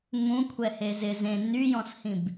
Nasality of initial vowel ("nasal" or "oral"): nasal